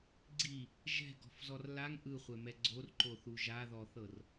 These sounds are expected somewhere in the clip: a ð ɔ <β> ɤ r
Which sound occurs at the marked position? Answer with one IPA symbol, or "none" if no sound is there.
θ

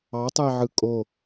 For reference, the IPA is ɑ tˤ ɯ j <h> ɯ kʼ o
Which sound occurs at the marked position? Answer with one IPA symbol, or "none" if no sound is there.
ʕ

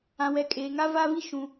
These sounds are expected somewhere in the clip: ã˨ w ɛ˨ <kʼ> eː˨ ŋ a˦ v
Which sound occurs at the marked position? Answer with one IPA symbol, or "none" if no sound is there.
kʼ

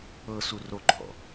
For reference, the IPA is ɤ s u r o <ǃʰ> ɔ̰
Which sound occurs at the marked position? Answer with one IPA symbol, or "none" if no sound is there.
ǃʰ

